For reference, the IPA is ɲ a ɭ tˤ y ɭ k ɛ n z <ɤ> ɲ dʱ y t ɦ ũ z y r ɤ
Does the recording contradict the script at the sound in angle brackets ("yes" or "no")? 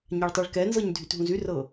no